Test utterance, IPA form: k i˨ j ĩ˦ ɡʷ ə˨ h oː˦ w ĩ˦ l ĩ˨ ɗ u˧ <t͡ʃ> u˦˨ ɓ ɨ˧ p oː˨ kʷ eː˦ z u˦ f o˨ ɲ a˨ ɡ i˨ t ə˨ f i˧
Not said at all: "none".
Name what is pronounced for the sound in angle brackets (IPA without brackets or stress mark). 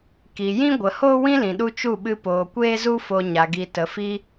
t͡ʃ